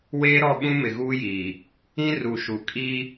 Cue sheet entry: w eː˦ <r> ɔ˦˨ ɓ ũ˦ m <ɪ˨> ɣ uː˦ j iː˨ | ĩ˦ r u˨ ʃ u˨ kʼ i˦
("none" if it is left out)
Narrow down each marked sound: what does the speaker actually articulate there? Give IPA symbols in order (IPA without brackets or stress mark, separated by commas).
ɾ, ɪ˨